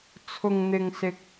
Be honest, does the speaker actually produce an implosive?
no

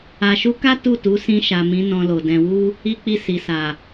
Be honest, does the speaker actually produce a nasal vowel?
yes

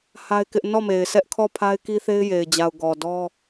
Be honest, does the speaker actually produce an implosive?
no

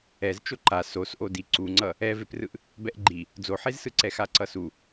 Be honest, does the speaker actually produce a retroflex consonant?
no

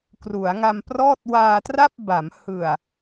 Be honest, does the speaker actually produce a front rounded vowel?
no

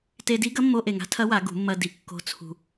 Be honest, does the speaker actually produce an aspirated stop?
yes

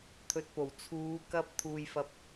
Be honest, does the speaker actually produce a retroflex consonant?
no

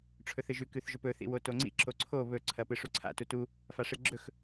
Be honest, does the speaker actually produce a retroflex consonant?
yes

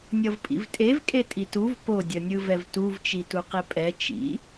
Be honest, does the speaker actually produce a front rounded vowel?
no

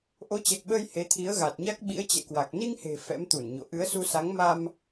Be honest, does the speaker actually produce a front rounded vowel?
no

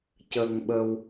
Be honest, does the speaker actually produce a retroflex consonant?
no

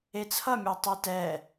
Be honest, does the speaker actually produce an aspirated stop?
yes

